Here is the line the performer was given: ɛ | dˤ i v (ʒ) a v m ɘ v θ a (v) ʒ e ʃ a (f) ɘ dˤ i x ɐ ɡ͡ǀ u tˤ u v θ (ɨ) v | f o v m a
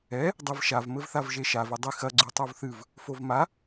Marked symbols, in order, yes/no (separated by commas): no, yes, no, yes